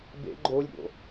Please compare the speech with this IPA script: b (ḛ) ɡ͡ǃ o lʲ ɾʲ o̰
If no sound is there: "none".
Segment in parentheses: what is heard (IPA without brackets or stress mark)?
ḛ